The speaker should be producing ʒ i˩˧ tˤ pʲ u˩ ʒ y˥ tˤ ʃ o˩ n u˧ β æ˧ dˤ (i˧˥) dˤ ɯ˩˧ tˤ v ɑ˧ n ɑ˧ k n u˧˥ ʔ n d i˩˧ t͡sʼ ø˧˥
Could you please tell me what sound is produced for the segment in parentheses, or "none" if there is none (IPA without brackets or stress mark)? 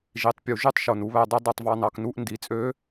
i˧˥